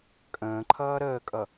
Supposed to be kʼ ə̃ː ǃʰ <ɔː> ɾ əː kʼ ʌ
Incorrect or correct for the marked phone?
incorrect: ʌː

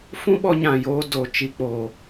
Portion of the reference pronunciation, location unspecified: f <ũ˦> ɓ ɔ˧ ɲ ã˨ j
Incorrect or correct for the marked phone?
correct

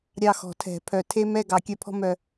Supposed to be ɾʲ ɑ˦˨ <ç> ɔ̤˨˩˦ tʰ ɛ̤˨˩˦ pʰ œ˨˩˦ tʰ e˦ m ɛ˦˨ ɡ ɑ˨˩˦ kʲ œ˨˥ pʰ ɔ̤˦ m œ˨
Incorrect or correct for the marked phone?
incorrect: x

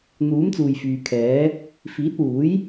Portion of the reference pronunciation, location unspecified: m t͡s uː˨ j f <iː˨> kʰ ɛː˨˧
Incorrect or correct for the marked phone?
incorrect: yː˨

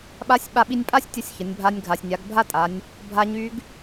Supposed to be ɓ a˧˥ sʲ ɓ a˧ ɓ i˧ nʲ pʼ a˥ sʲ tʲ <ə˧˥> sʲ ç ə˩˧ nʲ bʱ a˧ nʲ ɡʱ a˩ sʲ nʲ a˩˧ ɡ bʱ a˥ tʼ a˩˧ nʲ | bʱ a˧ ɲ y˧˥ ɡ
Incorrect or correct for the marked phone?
correct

